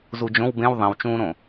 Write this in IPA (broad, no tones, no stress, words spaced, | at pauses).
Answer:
zud͡ʒõw bẽw ðˤẽwt͡ʃũːɾõ